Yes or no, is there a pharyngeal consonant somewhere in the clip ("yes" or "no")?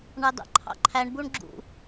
no